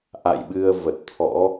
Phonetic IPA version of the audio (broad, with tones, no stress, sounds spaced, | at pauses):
ʔ a̰˧˨ j ɓ ɨ˧ ə̯ v ə˨˩ t̚ t̪ʰ ɔ̰˧˥